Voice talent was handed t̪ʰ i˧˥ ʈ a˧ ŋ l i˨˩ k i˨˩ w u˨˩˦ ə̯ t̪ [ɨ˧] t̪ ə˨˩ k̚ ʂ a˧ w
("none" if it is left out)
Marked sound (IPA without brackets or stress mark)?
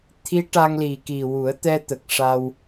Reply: ɛ˧